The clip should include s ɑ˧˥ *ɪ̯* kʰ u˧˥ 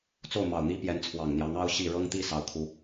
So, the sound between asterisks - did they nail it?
no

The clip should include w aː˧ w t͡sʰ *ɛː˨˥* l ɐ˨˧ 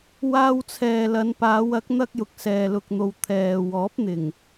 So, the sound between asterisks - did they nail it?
no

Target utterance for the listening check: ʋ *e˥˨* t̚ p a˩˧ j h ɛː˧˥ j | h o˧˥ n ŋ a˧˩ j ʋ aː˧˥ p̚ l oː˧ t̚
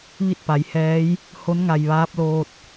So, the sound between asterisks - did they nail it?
no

